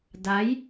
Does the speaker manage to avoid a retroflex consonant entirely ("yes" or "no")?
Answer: yes